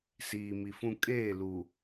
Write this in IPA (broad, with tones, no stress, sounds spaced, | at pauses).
s iː˨ m i˨ f ũ˦ kʼ eː˦˨ l u˨